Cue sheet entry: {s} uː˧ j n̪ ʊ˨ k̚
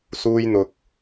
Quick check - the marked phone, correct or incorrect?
correct